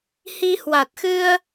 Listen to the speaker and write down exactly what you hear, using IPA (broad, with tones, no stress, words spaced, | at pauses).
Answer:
hi˧hwa˨˩t̚ xɨ˧ə̯